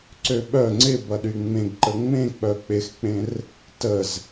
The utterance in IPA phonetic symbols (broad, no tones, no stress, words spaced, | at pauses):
ǀøɓœ ŋ͡ǀɪbɐɗy ŋ͡mẽɡǃə ŋ͡mẽ k͡pœk͡pɪxk͡pẽr | təz